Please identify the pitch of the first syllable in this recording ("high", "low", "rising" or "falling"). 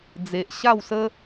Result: low